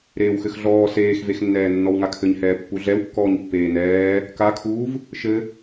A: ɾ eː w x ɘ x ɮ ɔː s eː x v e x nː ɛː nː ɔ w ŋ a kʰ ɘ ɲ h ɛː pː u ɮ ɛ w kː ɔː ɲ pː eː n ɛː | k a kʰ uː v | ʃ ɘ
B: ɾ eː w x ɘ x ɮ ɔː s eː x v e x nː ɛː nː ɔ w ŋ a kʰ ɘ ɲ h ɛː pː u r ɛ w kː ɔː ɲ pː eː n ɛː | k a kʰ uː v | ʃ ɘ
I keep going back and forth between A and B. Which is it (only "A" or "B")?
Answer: A